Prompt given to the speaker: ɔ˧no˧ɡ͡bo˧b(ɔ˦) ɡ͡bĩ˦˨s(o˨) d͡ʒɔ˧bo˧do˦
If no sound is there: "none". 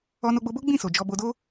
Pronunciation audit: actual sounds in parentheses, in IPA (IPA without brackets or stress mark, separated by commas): o˦, o˨